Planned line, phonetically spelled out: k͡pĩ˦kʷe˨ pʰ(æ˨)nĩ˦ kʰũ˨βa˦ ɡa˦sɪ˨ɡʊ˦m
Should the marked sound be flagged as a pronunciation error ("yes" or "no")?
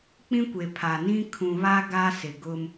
yes